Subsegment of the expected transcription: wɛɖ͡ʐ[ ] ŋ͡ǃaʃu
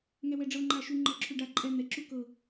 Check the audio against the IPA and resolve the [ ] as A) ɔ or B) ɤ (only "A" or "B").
B